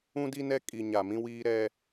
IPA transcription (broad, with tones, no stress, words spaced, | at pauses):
ũ˦di˦nɛ˦ kʼi˨ ɲa˨mĩ˦wiː˦ ɾɛ˦